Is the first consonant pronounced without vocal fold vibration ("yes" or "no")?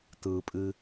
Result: yes